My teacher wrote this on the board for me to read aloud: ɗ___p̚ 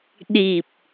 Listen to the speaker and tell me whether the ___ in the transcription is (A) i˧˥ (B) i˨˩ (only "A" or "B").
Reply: B